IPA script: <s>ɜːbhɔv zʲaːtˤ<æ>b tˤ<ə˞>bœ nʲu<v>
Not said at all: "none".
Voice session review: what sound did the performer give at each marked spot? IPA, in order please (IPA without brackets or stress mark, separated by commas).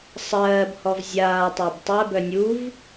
sˤ, æ, ɜ, v